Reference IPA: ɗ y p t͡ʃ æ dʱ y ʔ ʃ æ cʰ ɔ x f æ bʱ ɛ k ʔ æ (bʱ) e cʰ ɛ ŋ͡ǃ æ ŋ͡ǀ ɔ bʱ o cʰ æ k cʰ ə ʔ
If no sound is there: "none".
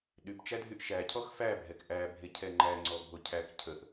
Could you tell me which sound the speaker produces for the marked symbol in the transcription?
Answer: bʱ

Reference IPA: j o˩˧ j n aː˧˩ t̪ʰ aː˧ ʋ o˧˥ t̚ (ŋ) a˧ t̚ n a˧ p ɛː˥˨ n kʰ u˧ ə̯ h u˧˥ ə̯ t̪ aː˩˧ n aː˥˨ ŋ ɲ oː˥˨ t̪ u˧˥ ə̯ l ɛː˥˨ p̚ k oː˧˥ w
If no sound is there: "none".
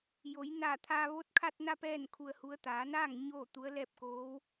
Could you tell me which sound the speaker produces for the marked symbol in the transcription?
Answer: kʰ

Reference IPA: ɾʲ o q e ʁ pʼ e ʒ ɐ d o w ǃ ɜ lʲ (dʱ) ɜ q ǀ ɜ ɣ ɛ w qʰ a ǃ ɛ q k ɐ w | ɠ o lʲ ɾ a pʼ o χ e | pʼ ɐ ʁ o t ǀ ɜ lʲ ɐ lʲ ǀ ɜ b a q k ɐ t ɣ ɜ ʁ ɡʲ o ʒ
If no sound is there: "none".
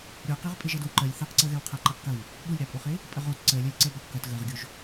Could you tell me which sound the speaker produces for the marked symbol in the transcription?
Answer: θ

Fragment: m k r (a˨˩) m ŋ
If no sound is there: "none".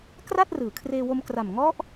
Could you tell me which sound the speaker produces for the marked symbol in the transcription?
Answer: a˨˩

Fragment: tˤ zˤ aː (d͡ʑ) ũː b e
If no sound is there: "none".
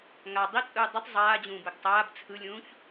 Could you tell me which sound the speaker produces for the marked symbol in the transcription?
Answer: d͡ʑ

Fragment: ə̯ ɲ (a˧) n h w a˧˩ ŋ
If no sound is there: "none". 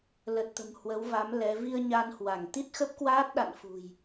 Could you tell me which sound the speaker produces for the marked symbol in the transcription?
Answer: a˧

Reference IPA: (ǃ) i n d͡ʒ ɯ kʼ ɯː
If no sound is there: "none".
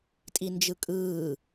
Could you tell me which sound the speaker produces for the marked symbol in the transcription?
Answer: tʼ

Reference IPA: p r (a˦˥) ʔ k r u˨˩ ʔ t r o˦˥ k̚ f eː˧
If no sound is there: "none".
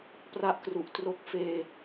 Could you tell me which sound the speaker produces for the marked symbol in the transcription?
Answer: a˦˥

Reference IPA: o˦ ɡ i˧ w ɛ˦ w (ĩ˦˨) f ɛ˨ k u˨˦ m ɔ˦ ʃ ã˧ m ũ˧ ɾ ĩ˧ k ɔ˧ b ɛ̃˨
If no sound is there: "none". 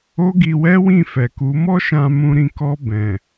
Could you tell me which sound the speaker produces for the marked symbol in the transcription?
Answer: ĩ˦˨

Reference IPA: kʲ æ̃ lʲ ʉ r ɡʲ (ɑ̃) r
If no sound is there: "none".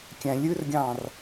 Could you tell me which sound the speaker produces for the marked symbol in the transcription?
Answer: ɑ̃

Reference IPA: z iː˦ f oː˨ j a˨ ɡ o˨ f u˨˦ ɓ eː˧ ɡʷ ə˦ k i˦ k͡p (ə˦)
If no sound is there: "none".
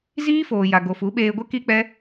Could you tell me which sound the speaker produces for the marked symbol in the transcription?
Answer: ɛ˦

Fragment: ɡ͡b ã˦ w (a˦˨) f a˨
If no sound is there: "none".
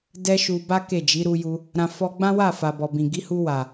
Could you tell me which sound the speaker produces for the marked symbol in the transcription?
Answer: a˦˨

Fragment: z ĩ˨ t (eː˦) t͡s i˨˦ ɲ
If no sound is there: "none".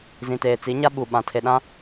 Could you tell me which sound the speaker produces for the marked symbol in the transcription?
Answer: eː˨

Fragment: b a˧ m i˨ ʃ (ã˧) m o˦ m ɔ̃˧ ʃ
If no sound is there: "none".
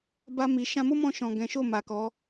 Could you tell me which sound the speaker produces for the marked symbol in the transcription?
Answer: ã˧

